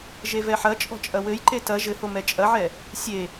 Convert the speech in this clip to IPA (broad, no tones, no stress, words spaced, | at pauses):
ʒevɛħɐt͡ʃʼɔ̤ t͡ʃʼɐwɘjǃe tɐ ʒɘho mɛt͡ʃʼɐʕɛ | sʲe